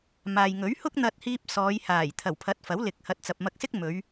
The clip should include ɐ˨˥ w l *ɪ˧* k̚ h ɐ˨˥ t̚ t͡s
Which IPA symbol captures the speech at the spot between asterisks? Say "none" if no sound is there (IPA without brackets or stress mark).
ɪ˨˥